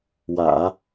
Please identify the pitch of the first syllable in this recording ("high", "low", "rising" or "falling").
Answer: low